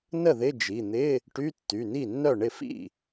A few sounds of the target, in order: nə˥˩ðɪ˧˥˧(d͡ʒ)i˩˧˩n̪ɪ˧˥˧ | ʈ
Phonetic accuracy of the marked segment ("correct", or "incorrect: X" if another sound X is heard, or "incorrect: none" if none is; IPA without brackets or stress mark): correct